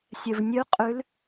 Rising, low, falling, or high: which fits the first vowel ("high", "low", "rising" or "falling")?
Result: low